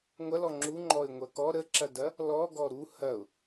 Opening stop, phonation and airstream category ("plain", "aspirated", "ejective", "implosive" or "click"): click